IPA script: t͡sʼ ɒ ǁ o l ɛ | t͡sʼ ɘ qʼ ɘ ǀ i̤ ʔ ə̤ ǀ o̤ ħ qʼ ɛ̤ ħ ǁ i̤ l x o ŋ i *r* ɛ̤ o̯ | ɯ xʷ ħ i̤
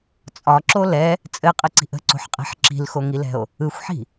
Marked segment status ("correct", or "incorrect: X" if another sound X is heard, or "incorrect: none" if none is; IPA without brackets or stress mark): incorrect: l